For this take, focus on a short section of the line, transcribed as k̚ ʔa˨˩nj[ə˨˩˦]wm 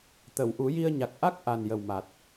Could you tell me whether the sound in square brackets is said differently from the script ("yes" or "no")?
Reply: yes